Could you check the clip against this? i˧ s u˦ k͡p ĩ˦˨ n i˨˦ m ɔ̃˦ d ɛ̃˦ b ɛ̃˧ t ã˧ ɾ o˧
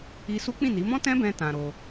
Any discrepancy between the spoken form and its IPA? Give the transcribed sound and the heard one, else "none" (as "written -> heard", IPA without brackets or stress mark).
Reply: d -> t